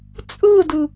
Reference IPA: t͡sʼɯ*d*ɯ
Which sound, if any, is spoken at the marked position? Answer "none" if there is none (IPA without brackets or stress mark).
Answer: d